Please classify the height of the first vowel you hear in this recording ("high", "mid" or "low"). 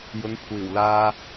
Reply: high